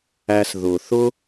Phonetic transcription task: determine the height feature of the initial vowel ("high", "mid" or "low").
low